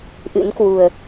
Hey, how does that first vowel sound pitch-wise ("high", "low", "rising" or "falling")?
rising